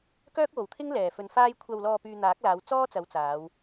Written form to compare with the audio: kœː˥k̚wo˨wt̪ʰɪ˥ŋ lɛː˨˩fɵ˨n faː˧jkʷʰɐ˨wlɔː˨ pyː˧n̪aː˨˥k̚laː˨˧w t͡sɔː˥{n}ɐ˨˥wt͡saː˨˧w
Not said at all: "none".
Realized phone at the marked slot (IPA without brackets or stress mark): t͡s